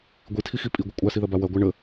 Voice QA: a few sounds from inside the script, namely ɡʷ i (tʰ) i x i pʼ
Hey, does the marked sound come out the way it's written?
yes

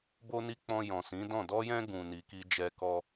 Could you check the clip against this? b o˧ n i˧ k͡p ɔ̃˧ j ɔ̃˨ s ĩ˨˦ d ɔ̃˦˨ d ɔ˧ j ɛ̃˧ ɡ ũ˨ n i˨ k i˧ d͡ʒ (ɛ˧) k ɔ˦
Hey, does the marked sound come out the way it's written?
yes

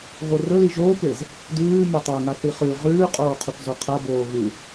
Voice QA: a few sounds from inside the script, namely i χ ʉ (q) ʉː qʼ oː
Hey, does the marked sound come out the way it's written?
no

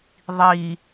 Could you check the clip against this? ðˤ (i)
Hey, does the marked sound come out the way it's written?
yes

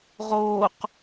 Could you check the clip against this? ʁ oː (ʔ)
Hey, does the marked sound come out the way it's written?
no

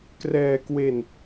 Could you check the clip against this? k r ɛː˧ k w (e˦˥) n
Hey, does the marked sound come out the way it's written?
no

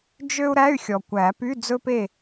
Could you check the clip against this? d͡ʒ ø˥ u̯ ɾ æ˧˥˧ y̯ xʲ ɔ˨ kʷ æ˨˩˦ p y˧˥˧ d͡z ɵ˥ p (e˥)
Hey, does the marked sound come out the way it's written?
no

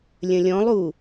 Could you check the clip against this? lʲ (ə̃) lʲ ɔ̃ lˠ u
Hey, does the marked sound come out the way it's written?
yes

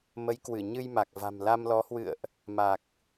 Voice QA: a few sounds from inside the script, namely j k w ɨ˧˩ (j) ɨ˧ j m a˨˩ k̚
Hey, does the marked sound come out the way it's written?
no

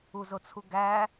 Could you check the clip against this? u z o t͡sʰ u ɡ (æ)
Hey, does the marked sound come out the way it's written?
yes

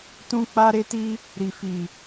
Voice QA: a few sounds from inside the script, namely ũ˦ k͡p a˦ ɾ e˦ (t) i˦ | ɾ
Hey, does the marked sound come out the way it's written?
yes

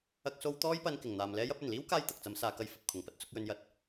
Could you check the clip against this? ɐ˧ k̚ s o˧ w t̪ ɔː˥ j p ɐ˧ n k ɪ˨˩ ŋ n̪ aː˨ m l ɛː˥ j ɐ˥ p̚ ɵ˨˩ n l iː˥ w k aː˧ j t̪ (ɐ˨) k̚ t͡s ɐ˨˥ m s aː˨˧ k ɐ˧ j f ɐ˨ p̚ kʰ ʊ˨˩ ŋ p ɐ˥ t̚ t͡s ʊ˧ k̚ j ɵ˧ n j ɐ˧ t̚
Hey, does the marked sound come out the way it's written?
yes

